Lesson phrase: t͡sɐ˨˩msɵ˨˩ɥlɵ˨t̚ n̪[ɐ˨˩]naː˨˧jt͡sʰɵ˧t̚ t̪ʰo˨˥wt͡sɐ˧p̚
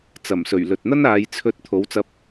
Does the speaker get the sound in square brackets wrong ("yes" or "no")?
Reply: yes